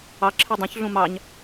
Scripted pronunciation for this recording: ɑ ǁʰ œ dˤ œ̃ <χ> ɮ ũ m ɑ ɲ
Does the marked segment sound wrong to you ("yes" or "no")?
yes